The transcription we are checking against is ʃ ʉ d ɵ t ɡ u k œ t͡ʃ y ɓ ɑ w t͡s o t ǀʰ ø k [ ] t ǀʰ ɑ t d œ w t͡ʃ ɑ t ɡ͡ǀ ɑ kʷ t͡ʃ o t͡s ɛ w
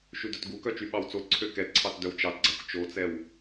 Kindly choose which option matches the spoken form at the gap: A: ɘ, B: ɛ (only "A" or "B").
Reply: B